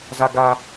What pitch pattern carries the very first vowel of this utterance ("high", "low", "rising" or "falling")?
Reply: high